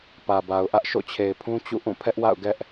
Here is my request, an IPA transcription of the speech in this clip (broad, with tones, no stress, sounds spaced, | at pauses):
p ä˨ b a˨ ʊ̯ ʔ ä˦ ʔ ʃ o̰˦˨ t͡ɕʰ e˨ ɪ̯ pʰ ũ˦ t͡ɕ ṵ˦˨ ʔ ũ˦˨ pʰ ɛ˦ ʔ w a̰˦˨ ʊ̯ ɡ ɛ˦ ʔ